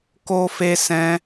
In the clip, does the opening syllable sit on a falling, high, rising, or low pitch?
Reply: high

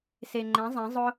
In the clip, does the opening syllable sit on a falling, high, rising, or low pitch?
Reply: low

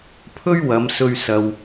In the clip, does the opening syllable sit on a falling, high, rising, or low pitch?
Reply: high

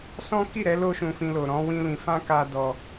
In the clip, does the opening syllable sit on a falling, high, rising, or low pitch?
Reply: high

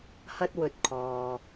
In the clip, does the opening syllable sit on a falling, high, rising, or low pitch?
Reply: high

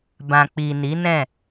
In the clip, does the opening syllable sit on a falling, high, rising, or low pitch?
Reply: low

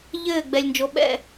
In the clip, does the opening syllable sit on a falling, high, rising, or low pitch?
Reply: falling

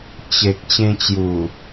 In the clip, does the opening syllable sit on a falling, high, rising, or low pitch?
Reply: low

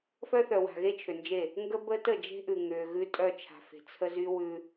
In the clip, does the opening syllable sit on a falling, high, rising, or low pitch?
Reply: high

